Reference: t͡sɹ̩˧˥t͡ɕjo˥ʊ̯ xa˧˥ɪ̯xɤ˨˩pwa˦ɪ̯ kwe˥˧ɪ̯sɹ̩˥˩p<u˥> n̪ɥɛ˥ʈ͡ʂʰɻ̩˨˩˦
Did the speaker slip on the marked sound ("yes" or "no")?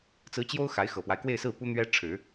no